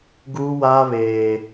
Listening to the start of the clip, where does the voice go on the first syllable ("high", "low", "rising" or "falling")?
high